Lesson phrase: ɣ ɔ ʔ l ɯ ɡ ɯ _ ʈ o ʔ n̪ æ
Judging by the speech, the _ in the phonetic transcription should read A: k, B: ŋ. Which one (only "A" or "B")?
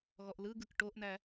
A